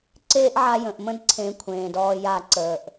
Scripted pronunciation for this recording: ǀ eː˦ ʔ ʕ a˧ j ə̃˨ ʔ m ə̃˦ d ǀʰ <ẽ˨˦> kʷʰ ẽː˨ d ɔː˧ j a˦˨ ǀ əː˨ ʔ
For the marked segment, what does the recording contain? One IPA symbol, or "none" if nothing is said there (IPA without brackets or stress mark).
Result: ẽ˨˦